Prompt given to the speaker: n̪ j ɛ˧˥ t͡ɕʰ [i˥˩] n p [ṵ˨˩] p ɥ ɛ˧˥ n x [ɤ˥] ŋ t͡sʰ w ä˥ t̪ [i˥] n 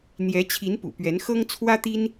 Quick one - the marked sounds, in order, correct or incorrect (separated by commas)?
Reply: incorrect, correct, correct, correct